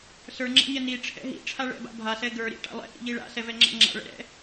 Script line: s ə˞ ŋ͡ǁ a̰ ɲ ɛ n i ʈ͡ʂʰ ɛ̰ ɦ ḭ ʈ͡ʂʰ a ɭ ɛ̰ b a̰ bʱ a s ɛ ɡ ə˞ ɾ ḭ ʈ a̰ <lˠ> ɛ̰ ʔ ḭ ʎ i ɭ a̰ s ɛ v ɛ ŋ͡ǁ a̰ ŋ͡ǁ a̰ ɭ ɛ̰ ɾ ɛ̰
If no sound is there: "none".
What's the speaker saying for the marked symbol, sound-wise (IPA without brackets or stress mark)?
lˠ